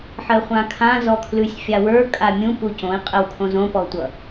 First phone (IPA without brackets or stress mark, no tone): ħ